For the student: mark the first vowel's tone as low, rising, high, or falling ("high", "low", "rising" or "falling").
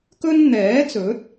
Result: high